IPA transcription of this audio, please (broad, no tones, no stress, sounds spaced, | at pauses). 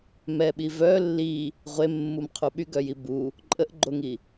m ɛ ɓ i v œ lː i | ʁʷ e mː u m qʰ u ɓ y ɡ œ j i b u | ǃʼ ə ʔ ɡ͡ǃ o ŋ i